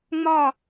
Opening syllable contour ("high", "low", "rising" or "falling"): falling